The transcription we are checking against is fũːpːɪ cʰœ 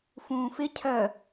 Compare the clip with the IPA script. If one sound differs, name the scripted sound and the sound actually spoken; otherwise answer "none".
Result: pː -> f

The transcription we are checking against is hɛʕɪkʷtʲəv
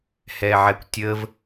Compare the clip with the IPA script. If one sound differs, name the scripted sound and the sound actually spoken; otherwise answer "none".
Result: ɪ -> ɛ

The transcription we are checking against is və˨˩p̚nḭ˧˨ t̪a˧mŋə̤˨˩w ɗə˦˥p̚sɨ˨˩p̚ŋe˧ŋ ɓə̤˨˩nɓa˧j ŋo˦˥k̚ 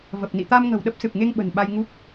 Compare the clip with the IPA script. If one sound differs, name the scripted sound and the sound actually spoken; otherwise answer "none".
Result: o˦˥ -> u˦˥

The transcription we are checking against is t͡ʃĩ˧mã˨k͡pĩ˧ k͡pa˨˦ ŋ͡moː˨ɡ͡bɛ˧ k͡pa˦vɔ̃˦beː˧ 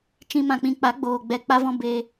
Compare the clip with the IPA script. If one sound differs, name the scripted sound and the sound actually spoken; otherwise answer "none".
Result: ŋ͡m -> ɡ͡b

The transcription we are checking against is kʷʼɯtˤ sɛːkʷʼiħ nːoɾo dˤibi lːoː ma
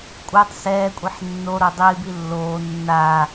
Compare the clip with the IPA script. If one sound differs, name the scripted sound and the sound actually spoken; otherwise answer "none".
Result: m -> nː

